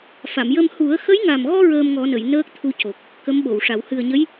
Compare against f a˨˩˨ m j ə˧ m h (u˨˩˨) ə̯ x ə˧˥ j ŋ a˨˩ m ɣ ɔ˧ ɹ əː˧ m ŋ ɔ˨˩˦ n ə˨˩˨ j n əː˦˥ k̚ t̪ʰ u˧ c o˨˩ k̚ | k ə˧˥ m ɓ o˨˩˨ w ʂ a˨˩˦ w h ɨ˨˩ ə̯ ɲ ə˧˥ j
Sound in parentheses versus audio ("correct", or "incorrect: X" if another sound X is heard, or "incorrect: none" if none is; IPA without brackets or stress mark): incorrect: u˨˩˦